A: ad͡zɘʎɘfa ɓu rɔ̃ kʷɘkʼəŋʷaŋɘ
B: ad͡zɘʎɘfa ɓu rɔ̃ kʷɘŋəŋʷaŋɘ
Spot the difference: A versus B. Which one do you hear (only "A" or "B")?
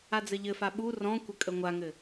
A